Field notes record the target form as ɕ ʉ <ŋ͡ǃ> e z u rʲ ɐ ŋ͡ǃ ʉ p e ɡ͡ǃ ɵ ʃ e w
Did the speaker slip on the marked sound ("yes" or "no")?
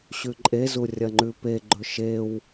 yes